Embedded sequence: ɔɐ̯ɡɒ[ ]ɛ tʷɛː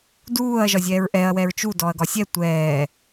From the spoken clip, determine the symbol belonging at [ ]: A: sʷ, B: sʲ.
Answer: B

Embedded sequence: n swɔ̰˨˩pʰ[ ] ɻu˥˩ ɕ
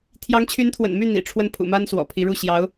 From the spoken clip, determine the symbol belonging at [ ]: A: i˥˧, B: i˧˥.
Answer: B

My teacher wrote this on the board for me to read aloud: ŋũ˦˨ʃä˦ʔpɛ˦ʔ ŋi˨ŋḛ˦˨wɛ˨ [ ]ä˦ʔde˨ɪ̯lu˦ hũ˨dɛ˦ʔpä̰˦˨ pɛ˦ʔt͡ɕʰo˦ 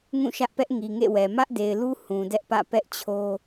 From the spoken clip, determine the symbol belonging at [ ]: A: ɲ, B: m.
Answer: B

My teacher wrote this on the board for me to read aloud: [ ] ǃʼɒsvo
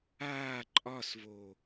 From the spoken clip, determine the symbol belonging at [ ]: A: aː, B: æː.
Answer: A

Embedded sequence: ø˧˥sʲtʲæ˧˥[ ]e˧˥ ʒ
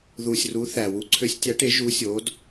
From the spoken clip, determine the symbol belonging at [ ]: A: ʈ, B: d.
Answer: A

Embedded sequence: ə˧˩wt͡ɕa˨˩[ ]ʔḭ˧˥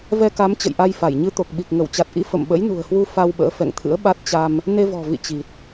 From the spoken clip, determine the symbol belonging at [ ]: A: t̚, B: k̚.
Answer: A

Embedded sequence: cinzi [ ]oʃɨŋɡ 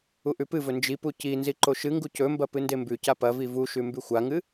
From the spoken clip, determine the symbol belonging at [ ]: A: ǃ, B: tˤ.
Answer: A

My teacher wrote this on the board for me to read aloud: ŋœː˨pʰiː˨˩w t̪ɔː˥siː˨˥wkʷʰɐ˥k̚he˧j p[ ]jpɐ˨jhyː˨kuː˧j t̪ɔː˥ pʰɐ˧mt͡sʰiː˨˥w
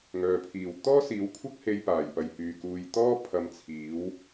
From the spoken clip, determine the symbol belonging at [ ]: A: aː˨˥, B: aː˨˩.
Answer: B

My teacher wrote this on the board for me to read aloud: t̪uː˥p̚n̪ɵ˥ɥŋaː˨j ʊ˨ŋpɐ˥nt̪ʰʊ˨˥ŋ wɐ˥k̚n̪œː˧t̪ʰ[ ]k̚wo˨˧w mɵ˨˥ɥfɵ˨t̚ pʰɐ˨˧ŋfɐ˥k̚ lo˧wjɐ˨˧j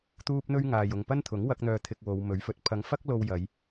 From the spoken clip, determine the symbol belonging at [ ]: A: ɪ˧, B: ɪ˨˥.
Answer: A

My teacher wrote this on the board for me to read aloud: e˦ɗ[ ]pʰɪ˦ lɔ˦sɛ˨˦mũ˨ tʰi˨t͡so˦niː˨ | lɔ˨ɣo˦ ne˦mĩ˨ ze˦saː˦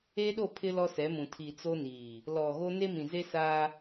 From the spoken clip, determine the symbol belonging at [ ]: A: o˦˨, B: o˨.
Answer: A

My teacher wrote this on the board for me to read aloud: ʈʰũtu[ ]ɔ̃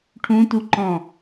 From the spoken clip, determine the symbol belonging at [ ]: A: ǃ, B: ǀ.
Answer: A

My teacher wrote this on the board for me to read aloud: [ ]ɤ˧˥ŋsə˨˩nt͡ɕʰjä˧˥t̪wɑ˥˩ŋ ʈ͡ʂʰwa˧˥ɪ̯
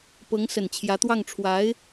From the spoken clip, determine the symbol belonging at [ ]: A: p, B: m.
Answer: A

